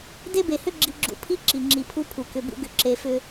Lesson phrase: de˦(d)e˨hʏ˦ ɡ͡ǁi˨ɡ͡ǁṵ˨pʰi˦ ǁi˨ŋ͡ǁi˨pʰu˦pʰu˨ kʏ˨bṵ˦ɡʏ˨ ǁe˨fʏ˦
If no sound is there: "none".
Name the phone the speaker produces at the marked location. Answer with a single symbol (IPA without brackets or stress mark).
b